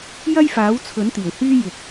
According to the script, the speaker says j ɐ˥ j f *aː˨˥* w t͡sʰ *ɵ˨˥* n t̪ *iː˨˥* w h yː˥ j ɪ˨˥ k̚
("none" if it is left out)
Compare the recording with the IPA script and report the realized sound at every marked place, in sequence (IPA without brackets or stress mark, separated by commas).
aː˨˥, ɵ˨˥, iː˨˩